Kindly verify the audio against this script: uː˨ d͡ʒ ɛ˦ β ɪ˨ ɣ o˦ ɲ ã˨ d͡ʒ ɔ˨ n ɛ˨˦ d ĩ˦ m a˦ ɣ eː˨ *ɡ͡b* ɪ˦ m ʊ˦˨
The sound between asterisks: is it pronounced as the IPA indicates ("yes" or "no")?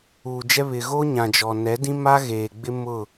yes